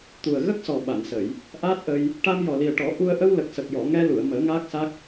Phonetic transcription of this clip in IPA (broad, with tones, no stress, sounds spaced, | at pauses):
t̪ u˨˩ ə̯ ɣ ə˦˥ k̚ s ɔ˨˩ ɓ a˨˩˨ n s ə˨˩˨ j | ʔ aː˦˥ t̚ ʔ ə˧ j | ʈ a˧ m j ɔ˨˩ l i˨˩ ə̯ ʈ ɔ˨˩˦ ʔ u˧ ə̯ ʔ ə˧ w l ə˨˩ k̚ s ə˨˩ k̚ j ɔ˨˩˨ ŋ ɛ˧ l u˨˩˨ ə̯ m əː˨˩˦ ŋ aː˦˥ k̚ s a˦˥ k̚